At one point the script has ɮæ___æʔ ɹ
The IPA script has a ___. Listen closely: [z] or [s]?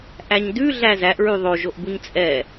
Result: z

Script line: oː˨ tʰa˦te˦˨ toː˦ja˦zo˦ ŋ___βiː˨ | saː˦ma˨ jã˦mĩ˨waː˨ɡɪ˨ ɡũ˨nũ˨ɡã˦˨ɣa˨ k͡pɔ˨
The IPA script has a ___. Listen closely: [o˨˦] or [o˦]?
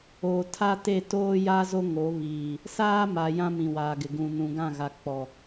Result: o˨˦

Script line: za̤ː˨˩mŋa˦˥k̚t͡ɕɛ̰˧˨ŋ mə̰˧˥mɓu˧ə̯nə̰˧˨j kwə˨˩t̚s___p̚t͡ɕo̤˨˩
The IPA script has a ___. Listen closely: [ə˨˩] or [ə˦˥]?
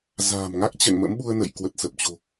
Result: ə˨˩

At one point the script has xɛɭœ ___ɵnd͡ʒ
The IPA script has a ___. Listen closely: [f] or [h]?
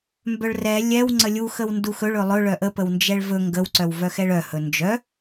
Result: h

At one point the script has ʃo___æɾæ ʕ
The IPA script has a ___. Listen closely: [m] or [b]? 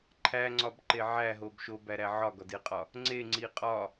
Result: b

